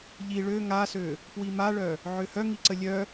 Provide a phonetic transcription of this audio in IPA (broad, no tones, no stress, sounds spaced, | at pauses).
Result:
ʎ i ɭ ø ŋ a s ø | p w i m a ɭ œ | ʕ ø h œ ŋ i ǀ ə lʲ œ